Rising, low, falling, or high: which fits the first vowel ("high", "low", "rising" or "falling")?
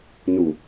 low